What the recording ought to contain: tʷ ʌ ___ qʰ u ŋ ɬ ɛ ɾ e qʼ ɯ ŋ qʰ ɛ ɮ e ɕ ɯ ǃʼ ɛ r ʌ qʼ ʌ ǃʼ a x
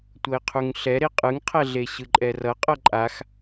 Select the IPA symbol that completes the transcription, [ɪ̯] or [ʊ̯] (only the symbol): ɪ̯